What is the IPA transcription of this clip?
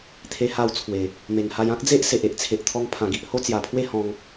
t̪ʰ e˧ h a˧ w t͡sʰ w e˨˩ | m e˨˩ ŋ h a˧ j ã˦ k̚ d͡z e˦ ʔ s e˨ ʔ e˨ ʔ t͡sʰ e˨ ʔ t̪ʰ ɔ˧ ŋ pʰ ã˨˩ ɡ i˨ ʔ h o˦ t͡s j a˨˩ pʰ w e˦ h ɔ̃˧ ŋ

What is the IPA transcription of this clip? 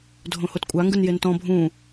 dʱ õ h o t kʷʼ a ŋ ɡ ɯ n j e n t ɔ̃ bʱ ũ

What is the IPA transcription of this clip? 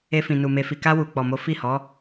e˧ f ĩ˨ n u˨ m e˨ f i˨ k a˧ w u˨ k͡p ɔ˨ m o˨˦ f i˦˨ h ɔ˨˦

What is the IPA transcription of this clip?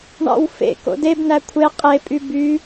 ɳ ɑ̰ w f ḛ k o̰ d e b n æ kʷʰ e qʼ e pʼ y b y

